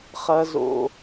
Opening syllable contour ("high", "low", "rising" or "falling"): low